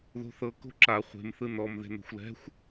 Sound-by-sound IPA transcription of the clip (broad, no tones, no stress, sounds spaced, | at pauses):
ð o̤ θ ɤ k o̤ ǁ a χʷ e̤ m θ ɯ n ɔ m ð e̤ n o̤ xʷ l ɛ̤ xʷ